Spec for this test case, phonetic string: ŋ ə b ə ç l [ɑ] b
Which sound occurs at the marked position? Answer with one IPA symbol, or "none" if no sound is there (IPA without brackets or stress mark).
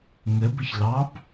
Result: ɑ